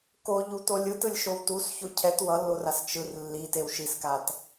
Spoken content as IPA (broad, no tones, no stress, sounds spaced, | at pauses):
k o ʎ u t o lʲ ɯ t ɯ lʲ ʃ o w t u s ç o cʰ ɛ t w ʌ lː o r a s t͡ʃ ɯ r lː i t e w ʃ i s k a t